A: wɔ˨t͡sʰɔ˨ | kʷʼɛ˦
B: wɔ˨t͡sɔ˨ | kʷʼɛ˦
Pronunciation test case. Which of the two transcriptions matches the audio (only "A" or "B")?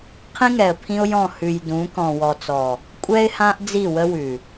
B